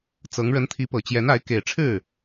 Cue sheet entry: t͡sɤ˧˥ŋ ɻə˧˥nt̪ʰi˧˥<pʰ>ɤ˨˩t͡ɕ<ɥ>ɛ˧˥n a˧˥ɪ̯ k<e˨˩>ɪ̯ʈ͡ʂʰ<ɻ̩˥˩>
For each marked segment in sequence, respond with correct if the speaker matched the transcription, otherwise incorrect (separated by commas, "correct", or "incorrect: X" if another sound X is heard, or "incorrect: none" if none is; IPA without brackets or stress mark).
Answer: incorrect: p, incorrect: j, correct, correct